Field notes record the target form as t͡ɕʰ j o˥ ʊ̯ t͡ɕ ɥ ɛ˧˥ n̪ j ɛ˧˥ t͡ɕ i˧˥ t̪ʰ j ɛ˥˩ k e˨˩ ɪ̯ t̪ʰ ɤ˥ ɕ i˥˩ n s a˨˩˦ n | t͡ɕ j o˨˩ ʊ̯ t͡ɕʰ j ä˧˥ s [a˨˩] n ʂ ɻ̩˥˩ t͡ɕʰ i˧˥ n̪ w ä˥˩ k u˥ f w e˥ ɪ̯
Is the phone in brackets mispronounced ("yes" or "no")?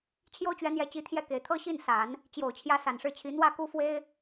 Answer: no